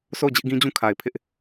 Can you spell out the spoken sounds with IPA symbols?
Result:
sʰ o˦˨ ʊ̯ d͡ʑ ɪ˦ ʔ ɡ ĩ˦ d͡ʑ ũ˦ kʰ a˨ ɪ̯ pʰ ɪ˦ ʔ

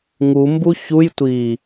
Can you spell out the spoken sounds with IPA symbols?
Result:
ŋ u m b u ç u j tʷ i

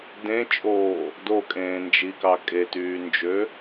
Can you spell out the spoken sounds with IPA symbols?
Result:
d ẽ t͡ʃʼ oː | d o kʼ ẽː n d͡ʒ i k ɑ kʼ e t yː n d͡ʒ ø

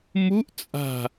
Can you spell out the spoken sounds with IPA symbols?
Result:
m u ʔ t͡sʼ a̤

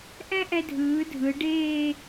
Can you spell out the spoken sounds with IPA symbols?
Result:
ʔ ɛ̃˥ ʔ ɛ˧ dʱ ɯː˩˧ dʱ ɯ˩˧ ɖ eː˥˧

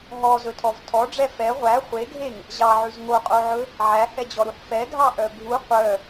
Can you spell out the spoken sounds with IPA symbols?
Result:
ɦ ɔ z ɵ tʰ ɔ v tʰ ɔ ɖ͡ʐ ɛ f ɛ ʁʷ æ χʷ e ɡʱ e ŋ | ʑ ɑ ʕ ʉ z ŋ o qʼ o ʕ ɵ | ʕ æ h ɛ d͡ʑ ɔ ɾ u ħ f ɛ ɡʱ ɑ ʔ œ bʱ u qʷ œ

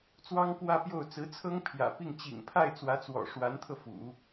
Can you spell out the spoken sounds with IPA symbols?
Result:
t͡s w ɑ˥ ŋ k w ä˥˧ p j o˥˩ ʊ̯ t͡s ɹ̩˧˥ t͡sʰ ɤ˥ ŋ pʰ j ä̰˨˩ p i˥˩ ŋ t͡ɕ ḭ˨˩ ŋ pʰ a˥˩ ɪ̯ t͡s w ä˧˥ t͡s w ɔ̰˨˩ ʂ w a˧˥ n t̪ʰ ɤ˧ f ṵ˨˩˦

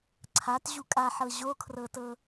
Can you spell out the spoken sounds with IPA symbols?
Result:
ǀʰ a t ʑ u kʼ a ħ ɤ ʑ o kʰ r ɤ t ɤ

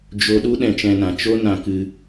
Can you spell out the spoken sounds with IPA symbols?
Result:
d͡ʒ o˧ ɗ u˦ ɗ ɛ̃˧ t͡ʃ ɛ̃˧ n ã˨ t͡ʃ o˦ n ã˧ k ɨ˧

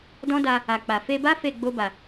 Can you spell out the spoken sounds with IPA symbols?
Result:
d ɔ̃˦ d a˧ | a˨ k͡p a˨ f e˧ b a˦ f e˦˨ ɡ͡b o˧ b a˨

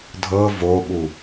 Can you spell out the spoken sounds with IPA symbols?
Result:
dʱ ɤ v o ɓ u

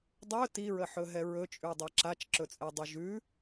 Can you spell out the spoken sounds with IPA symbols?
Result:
dˤ ɵ t i ɹ ə ħ ɵ ɦ ɛ ɹ ɵ t͡ʃʼ ʉ dˤ ɛ ǁ a t͡ʃ ǁ ɵ t͡sʼ ɛ dˤ ɵ ʒ ʉ

